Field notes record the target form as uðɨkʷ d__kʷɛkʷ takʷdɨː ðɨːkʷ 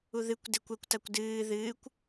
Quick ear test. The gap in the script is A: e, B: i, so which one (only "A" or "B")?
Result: A